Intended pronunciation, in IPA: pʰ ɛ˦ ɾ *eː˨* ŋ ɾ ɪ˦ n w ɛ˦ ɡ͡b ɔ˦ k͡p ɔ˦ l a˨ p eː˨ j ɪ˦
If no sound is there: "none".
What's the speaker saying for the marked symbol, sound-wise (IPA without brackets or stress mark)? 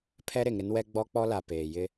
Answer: e˨